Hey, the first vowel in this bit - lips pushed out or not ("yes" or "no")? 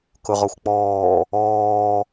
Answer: yes